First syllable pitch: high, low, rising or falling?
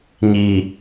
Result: low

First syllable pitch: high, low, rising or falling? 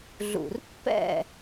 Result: low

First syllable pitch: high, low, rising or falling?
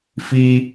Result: high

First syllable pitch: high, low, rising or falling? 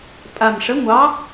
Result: low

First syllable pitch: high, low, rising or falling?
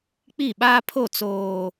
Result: falling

